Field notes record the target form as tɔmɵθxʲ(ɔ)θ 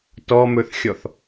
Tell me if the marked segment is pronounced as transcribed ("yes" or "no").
yes